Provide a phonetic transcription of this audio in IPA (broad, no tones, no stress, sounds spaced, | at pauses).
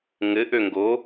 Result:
ŋ ɘ ʔ ø ŋ ɡ o